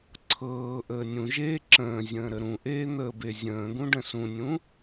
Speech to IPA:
ǀʰɤːʔəː nʲũʒeː ǁə̃ː zʲə̃ːɾəɾũʔeː n̪əːbezʲə̃ːɡũ ɖə̃sũnʲũ

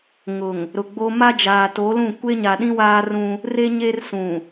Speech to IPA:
ŋʊ˨ŋ | ɾʊ˨ɡ͡bo˦ ma˦d͡ʒaː˨to˨˦lũ˦˨ kʷe˦ɲa˨ɗĩ˦ waː˦rũ˦ | re˦ɲe˦r sũ˨

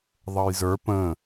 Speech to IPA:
ðˤʌjzə˞ pə̃

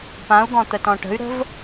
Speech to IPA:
pãu̯ɡɔ̃ t̪ətɔ̃ʈə̤y̯ɾə̤v

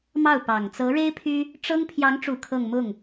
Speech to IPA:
mɑ˥˩ʊ̯pɑ˨˩ŋ t͡sɤ˧˥ɻe˥ɪ̯ pʰy˥ | ʈ͡ʂɤ˥ŋ pʰjɑ˧˥ŋʈ͡ʂu˨˩ kʰɤ˥˧ŋ mʊ˥˩ŋ

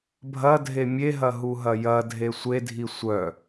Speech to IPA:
bʱɐdʱe mʲeɦɐ ɦuɦɐjɐdʱe sʷedʱi sʷœ

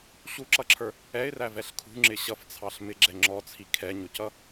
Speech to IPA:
ɕuǁʌǁʰə˞ | ɛɪ̯rævɛɬ kʰṳŋ͡ǁɪ ɕʌft͡sʰɑɬ mɪɡ͡ǁɛ ŋ͡ǁɔt͡sʰi kʰɛɲʊcʌ

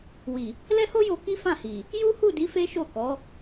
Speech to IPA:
wi˨ | lɛ˦ho˦jo˧ ki˦fã˦˨hi˨ | ju˦hu˦˨di˨˦ fe˦ʃo˦˨ kɔ˨˦

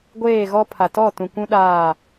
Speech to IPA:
ɡʷeː˦˨ɣɔ˦pʰa˨ tɔ˦˨tũ˨kʷũ˦ɗaː˦˨

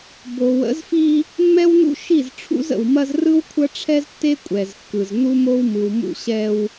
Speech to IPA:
bo˨wə̰˨˦zfi˦ | mːɛ˦wnṵ˦ ʃi˦˨z ʈ͡ʂʰṵ˦zə̰˨wmɐ˦z rɯ˦wkʷʰɐ˦ʈ͡ʂʰɛ˦ztːe˦ kʷʼɛ˨zkːɯ˨z nu˦mo˦w mɯ˨wmṵ˦ɕɛ˦w

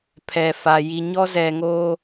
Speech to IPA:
pʰɛ˨fa˨ ji˨ɲɔ˦zɛ˨ŋo˦

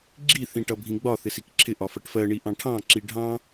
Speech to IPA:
ɡ͡ǁi θĩʈʌbʱĩɡ͡bɒ θɪsikǁʰɪ ʔɒfʌʈfɜ ɳiʔɑ̃ʈʰɑ̃ ǁiɖʱɑ̃

